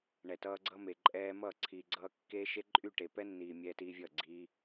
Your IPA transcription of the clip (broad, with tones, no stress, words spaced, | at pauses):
ɳɛ˨tʌː˧ɡ͡ǀʌ˦me˨ ǃʼɛː˧mʌː˦˨ ǀʰiː˨ɡ͡ǀʌː˧ kːeː˦ʃe˦ ǃʼy˦˨ʈe˨pɛ˦nːiː˨ mʲɛː˧tiː˧vʲʌː˦˨ ɡ͡ǀiː˧